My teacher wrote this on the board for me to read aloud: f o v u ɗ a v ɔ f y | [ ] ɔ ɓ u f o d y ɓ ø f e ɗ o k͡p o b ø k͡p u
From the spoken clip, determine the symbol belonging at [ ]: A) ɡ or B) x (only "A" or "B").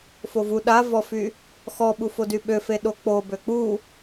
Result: B